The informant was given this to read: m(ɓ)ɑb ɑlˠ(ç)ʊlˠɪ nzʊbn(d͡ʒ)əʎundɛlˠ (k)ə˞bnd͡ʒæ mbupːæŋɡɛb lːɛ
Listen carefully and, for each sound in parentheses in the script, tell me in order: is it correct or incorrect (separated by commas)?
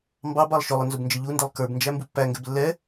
incorrect, incorrect, correct, correct